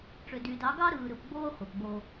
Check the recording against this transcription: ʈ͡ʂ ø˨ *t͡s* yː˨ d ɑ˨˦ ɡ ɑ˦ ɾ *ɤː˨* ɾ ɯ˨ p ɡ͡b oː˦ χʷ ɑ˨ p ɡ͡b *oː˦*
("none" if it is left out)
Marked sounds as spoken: d, ɯː˨, oː˦

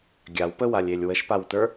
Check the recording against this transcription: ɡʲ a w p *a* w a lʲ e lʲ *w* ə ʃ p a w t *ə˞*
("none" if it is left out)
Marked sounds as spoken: ə, w, ə˞

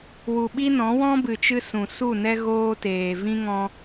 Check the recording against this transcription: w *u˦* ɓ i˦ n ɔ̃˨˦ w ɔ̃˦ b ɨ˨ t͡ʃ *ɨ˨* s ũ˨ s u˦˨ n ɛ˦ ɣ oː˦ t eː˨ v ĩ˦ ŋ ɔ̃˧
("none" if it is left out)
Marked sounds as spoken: u˨, ɨ˧

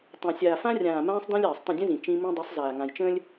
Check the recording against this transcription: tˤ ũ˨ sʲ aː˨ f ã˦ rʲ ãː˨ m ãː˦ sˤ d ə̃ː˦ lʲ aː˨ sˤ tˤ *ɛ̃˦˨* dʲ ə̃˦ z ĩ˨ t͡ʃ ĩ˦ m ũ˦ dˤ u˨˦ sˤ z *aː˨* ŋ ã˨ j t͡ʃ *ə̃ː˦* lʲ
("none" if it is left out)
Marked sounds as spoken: ə̃˦˨, aː˨, ə̃ː˦

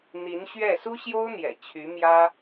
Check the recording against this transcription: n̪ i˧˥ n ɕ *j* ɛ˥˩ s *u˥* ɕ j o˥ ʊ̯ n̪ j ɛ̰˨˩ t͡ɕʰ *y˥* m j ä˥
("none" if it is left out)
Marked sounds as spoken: ɥ, u˥, y˧˥

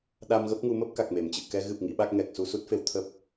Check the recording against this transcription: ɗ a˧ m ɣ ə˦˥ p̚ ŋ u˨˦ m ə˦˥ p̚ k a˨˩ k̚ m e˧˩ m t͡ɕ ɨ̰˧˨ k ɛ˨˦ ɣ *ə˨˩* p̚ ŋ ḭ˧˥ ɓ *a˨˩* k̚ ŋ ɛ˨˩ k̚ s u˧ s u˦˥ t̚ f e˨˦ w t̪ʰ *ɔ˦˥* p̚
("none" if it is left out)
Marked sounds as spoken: ɨ˨˩, a˦˥, ə˦˥

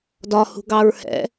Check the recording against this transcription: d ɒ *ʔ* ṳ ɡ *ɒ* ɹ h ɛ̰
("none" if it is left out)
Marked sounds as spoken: h, ɑ

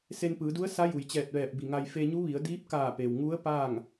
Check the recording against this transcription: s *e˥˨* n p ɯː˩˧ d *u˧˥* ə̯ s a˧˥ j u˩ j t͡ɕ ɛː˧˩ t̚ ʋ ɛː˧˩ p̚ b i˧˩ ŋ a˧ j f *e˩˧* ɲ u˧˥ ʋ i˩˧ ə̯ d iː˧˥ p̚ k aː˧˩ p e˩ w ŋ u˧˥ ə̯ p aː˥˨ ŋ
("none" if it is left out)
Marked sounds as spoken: e˧, u˧˥, e˧

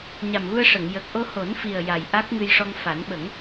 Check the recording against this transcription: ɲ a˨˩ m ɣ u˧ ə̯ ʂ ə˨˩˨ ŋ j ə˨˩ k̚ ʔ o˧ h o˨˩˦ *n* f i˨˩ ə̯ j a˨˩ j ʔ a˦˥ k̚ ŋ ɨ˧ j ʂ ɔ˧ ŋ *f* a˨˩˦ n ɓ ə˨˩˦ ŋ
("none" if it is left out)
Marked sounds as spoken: n, f

